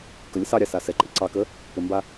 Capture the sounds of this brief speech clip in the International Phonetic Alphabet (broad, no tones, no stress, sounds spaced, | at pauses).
k ə lʲ ə s ɑ ɾʲ ɑ s a s ɛ ǃʼ e ǀ ɑ k ə | p ɘ m b a